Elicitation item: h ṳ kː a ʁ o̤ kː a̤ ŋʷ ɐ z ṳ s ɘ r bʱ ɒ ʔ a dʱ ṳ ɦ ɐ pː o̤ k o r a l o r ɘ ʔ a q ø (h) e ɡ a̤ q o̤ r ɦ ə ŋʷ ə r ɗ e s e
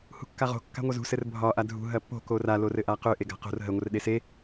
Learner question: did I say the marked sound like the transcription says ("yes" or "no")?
no